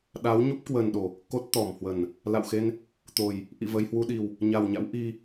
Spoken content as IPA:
ɗa˨˦wɲu˦˥p̚kwə˨˩nɗo˧˩˨ | ko˦˥t̚t̪ɔ˧˩mhwə˧˩˨n | la̰˧˨wxe˧n | t̪o˨˩j | ʔḭ˧˨və˧j hwu˧ɗi˨˩w | ɲa˨˩wɲa̰˧˥w ʔi˧

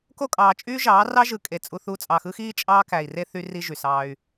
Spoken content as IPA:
ko˦˨kʼɑː˨t͡ʃʼyː˦ ʒɑː˨˦rɑ˦ʒɯ˨kʼe˨ t͡sʼu˦θu˦ t͡sʼɑ˨xɯ˦xiː˦ t͡ʃʼɑː˦kæ˨i̯re˦ θy˦ri˦ ʒy˨sɑː˦y̯

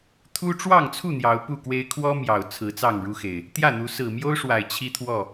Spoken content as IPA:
t̪ʰu˦ ʈ͡ʂwɑ˥˨ŋt͡sʰu˥˨ n̪jɑ˨˦ʊ̯pu˥˨kwe˦ɪ̯ kʰwɔ˦ mjɑ˨˩ʊ̯t͡sʰɹ̩˨˦ t͡sɑ˥˨ŋɻu˦xe˨˩ɪ̯ | t̪jä˥˨n̪u˨˦ sɹ̩˨˩mjo˦ʊ̯ʂwa˨˩ɪ̯ t͡ɕʰi˦t̪ʰwɔ˥˨

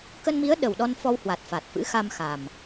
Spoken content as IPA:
kə˧nmi˨˦ə̯ ɗə˨˩wɗɔ˧nfɔ˧whwa˨˩t̚ fa˨˩t̚fɨ̰˧˥xa˧m xa˨˩m

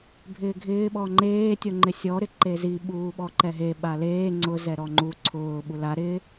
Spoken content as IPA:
bʱɪːɡʱɪː ɓɔŋ͡ǃeː tʲoŋ͡ǃɪsʲɔ ɾɪǃezi ɓuːɓɔǃɛɦe ɓaleː ŋ͡ǀʊ zɛɾɔŋ͡ǃu ǀʰʊː ɓula ɾɪ

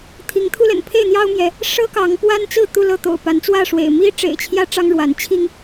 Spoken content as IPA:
t̪ʰi˨˦ŋt̪ʰu˦lə̰˨˩n pʰe˥˨ɪ̯n̪jɑ˦ʊ̯mjɛ˨˦ | ʂɤ˦kɑ˨˦ŋpwa˦nt͡sɹ̩˥˨ t̪u˥˨lɤ˥˨t̪o̰˨˩ʊ̯ pa˨˦nt͡swä˥˨ʂwḛ˨˩ɪ̯ mi˦ʈ͡ʂḛ˨˩ɪ̯ t͡ɕʰjä˦ʈ͡ʂɑ˦ŋɻwa˨˦n t͡ɕʰi˦ŋ

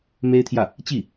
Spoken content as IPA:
me˥ɪ̯t̪ʰjä˥˩ | t͡ɕi˥˩

